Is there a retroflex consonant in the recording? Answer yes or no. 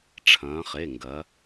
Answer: yes